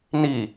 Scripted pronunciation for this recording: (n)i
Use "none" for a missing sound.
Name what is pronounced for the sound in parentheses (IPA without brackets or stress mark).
n